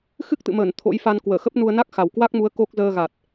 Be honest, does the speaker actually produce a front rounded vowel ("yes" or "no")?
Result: no